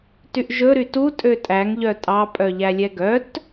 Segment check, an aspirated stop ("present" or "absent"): absent